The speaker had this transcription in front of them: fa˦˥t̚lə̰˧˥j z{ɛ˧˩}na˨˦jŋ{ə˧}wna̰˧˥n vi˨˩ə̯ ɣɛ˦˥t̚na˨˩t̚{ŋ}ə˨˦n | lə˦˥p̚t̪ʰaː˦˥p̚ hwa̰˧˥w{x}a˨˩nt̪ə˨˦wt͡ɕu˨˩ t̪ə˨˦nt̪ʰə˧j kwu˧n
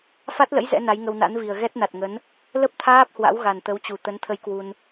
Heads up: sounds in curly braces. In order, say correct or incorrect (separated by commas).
incorrect, correct, correct, incorrect